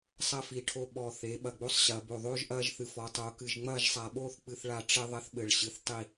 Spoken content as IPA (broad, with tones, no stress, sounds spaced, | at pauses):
sˤ ɐː˦ f i˨˩ ʈʰ o˦˨ ɓ ɔ˨˩ θ eː˩˧ ɓ ɐ˨˩ ɡ͡b o˦˨ sˤ ɕ ɐː˩˧ b o˨˩ ðˤ oː˦ ʒ ʔ ɐː˦ ʒ θ ɨ˩˧ f ɔ˩˧ tˤ oː˩˧ k ɨ˨˩ ʒ ŋ͡m ɐː˦˨ ʒ sˤ a˨˩ ɓ oː˦˨ θ k͡p ɨ˦˨ θ ɭ a˦˨ ʈ͡ʂ ɘ˦ ðˤ ɐ˦ θ ɓ ɘ˨˩ ɭ ɕ ɨ˩˧ θ tˤ i˨˩